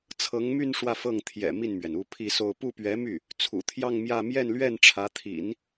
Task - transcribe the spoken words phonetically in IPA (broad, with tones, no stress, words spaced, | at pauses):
t͡sʰɤ˧˥ŋmy˥˧n ʂwä˥˧fɤ˥˩ŋ t̪ʰjɛ̰˨˩ mi˥˩nmɥɛ˩n u˥˧pʰi˥˧so˥˧ʊ̯ pu˥˩pɥɛ˧˥my˥˩ | t͡sʰṵ˨˩t̪ʰjɑ˥˧ŋmjä˥˧ mjɛ˥˧nlɥɛ˥˩n ʈ͡ʂʰä˧˥t̪ʰḭ˨˩˦n